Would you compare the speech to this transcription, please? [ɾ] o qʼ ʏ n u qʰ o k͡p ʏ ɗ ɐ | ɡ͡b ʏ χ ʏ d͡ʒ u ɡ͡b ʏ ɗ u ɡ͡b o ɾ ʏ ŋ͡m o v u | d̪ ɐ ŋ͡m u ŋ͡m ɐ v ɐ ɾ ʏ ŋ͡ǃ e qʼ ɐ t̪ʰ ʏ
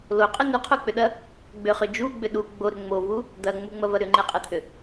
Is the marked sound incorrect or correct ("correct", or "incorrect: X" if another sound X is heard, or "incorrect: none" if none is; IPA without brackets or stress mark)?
incorrect: l